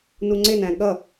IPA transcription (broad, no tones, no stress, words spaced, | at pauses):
nuŋ͡ǀɪnæ̃ ɠʌ